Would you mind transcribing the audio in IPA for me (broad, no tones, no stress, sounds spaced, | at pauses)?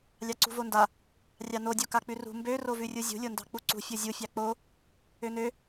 lʲ ɑ ǀ ṳ v o n d a | rʲ ɑ n o dʲ o k a k͡p ʉ r ṳ m b ø r o v ʉ rʲ u zʲ ṳ lʲ o n d ɑ̤ k͡p u ǀ ṳ fʲ o zʲ u fʲ ɑ k͡p o | ø n ø